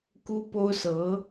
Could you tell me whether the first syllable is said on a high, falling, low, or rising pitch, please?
high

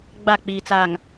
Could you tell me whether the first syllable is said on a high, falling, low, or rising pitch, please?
falling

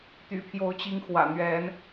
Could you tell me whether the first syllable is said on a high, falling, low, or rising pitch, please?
low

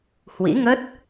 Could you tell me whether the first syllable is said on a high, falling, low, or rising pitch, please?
rising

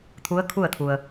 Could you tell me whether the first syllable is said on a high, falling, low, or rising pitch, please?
rising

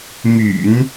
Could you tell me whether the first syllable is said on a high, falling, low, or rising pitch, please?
low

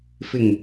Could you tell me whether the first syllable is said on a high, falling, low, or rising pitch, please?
low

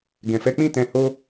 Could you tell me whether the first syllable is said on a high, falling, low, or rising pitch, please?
low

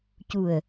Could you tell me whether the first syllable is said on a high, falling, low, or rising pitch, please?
low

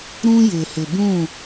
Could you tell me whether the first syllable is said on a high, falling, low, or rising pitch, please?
high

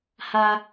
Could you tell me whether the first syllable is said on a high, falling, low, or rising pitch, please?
high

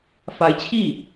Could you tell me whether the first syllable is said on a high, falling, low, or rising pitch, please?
rising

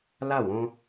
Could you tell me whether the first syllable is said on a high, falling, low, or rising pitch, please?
falling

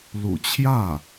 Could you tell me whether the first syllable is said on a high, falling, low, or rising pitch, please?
low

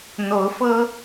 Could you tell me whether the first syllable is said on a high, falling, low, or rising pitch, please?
rising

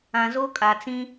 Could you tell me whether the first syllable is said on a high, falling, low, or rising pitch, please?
low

